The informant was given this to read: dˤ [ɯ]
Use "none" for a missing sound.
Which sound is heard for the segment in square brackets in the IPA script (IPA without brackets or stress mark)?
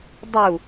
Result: u